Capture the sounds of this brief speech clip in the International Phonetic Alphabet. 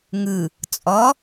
ŋ ɯ | t͡sʼ ɔ

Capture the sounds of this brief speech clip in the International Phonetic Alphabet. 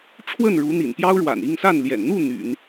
ʈ͡ʂʰ w ə˥˩ n ɻ u˧˥ n̪ ḭ˨˩ n p j ɑ˥ ʊ̯ ɻ w a̰˨˩ n i˥˧ ŋ s a˥˩ n l j ɛ̰˨˩ n n̪ u˥˩ n̪ y̰˨˩˦ n

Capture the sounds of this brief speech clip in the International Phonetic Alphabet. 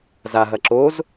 z a ɦ ɐ ǁ o z

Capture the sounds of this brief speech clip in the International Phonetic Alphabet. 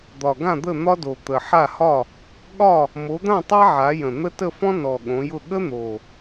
d̪ ɒ˨˩ ɡ ã˥˨ d̪ ə˥˨ n̪ ɒ˥ d o˨˩ t̪ ə˨˩ ħ a˥˨ h ɒ˥˨ | ɠ ɒ˥˨ | m o˨˦ d̪ ã˥˨ tˤ a˥ ʕ a˨˦ j ə̃˨˩ n̪ ə˥ t ə˥˨ f ɔ̃˥ n ɔ˨˩ ɠ õ˨˦ j ʊ˥˨ ɠ ə˥ n̪ o˨˩

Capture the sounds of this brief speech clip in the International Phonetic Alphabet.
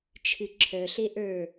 t͡ʃʰ ɨ ǁʰ œ ɬ e ʔ ə˞

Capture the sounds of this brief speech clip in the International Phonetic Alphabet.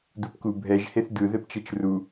d u p k u bʱ ɛ ʒ h e θ d ɯ ð ɛ p t͡ʃ ɛ t͡ʃ r u

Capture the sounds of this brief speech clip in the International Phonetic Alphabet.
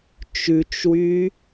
t͡ʃ ʉ t͡ʃ w y

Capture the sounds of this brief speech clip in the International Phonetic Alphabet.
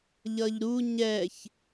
ʎ ʌ ʎ ɾ u ɲ ɛ ç

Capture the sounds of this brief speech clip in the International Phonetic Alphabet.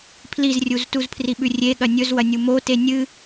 pʰ l i z rʲ u z t u z pʰ r i ɓ ʉ rʲ e ɠ ɐ nʲ ɵ z w ɐ nʲ u m o t e nʲ ɨ

